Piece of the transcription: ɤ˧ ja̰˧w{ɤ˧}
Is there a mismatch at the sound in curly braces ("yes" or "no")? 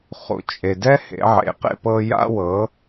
yes